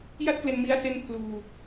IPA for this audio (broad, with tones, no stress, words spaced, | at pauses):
ja˥˩t̚kle˧nmi˦˥a̯ se˥˩npʰluː˧